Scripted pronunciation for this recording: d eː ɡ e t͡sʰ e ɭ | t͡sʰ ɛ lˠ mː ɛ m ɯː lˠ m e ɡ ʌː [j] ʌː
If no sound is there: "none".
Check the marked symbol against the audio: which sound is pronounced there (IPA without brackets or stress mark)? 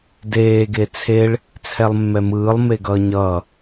ɲ